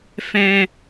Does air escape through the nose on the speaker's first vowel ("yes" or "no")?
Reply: yes